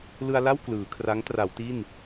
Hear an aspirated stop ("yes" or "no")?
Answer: yes